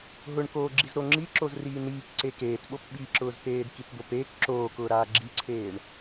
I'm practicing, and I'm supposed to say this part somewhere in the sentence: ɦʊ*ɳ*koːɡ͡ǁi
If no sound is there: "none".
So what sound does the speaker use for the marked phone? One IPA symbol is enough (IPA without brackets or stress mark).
ɳ